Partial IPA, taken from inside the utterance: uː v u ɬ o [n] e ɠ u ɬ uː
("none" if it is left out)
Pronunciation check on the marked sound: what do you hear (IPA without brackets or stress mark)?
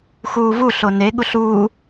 n